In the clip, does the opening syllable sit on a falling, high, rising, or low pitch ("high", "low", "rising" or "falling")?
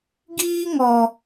high